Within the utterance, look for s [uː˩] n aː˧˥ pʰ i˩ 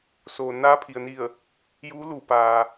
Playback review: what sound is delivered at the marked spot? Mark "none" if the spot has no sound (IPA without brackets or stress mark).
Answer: oː˩